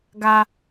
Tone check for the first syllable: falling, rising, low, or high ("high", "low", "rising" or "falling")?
high